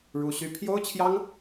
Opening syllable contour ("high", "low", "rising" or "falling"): high